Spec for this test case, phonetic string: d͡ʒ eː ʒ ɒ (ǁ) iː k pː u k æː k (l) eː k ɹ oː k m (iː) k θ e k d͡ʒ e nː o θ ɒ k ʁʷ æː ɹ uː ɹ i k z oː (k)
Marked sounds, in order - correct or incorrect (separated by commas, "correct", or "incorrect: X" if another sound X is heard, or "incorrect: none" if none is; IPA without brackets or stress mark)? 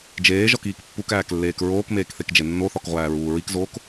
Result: incorrect: k, incorrect: lː, incorrect: eː, correct